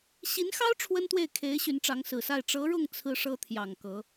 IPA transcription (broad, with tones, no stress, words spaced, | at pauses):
ɕi˧˥nxɑ˥ʊ̯ ʈ͡ʂʰwə˥nt̪we˥˩ɪ̯kʰe˧˥ɪ̯ ɕy˧˥nʈ͡ʂɑ˧˥ŋsɹ̩˨˩sa˥˩ɪ̯ ʈ͡ʂɤ˧˥ɻʊ˥˩ŋ t͡sʰɹ̩˥ʂɤ˥t̪ʰjɑ˨˩ŋ kɤ˧˥